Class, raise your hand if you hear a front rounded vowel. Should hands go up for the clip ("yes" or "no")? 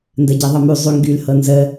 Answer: yes